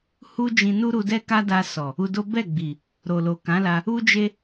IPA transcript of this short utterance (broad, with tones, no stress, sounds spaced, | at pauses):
h u˦ d͡ʒ ĩ˧ n u˦ ɾ u˧ d ɛ˦ k a˦ d a˧ s ɔ˨ | u˧ d o˦ b ɛ˦˨ ɡ͡b i˨ | ɾ o˨ l o˨ k ã˨˦ l a˧ | u˦ d͡ʒ e˦